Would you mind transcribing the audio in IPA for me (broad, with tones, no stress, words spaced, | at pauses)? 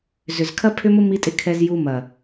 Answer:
zʏ˨zkʰɐ˦ pʰʏ˦mʊ˦mi˧tʼɪ˧ kʰɛ˧z ju˧mɐ˨